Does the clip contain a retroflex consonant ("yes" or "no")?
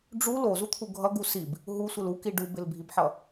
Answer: yes